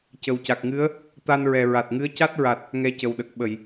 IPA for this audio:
c ə˨˩ w c a˨˩ k̚ ŋ ɨ˧˥ ə̯ | t̪ a˧ n ɹ ɛ˨˩ ɹ a˨˩ t̚ ŋ ɨ˧˥ ə̯ c a˦˥ t̚ ɹ a˨˩ t̚ | ŋ ɛ˧ c ə˨˩ w ɗ ə˨˩ k̚ ɓ ə˨˩˨ j

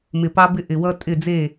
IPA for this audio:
m ɪ˨ p ɑ˦ b ɪ˦ ʔ ɪ˨ w ʌ˦ tʼ ɪ˦˨ d͡z e˦˨

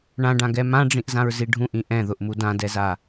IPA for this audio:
ɳ ã ɖ ã ɡ ɛ m ã ɖ͡ʐ ĩ ʔ z ã ɹ z i ɖʱ ũ ʔ ĩ ʔ ɛ̃ ð ʊ ʔ m u d ã d ɛ z a

